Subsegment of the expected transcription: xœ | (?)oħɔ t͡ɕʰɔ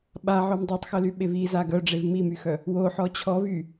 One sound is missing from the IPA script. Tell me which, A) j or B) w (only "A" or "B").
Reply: B